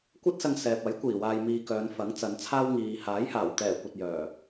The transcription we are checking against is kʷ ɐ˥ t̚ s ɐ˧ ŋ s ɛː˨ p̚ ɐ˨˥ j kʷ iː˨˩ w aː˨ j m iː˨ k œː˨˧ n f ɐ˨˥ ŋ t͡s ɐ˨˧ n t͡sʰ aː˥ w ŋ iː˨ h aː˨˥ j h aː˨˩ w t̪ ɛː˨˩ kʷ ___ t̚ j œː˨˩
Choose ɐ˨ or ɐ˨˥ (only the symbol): ɐ˨